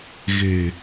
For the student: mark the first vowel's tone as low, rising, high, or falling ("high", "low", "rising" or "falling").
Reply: low